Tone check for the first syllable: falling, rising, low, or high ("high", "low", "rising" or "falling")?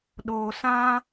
low